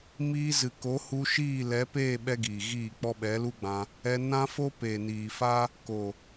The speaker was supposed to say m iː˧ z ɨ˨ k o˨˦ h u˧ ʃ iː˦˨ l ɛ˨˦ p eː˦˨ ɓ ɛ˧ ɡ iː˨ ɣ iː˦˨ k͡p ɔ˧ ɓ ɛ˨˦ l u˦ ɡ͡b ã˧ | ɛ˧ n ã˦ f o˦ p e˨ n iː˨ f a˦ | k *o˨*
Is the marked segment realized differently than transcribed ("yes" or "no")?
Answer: no